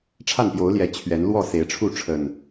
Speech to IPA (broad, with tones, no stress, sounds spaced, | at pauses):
ʈ͡ʂʰ a˥˨ n p j o˨˦ ʊ̯ l j ɛ˨˦ t͡ɕʰ ɥ ɛ˨˦ n l w ɔ˥˨ s e˨˦ ɪ̯ ʈ͡ʂʰ u˥˨ ʈ͡ʂʰ ə˨˩ n